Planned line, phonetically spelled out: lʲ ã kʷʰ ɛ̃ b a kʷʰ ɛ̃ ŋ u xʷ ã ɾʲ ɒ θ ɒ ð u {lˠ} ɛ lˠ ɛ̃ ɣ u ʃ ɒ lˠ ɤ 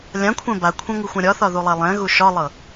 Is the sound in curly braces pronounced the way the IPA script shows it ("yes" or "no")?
yes